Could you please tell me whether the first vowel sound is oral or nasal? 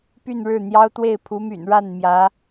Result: oral